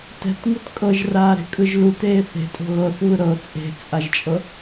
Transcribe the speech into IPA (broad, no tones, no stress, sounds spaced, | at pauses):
t ɛ̤ t ŋ ɯ t kʼ ɤ ʒ r aː ɾ e̤ kʼ ɯ ʒ l u t eː θ e̤ tʼ o̤ ɣ ɤ θ v ɯ ɾ ɤ t͡sʼ e̤ t͡sʼ a ʒ t͡ʃʼ ɤ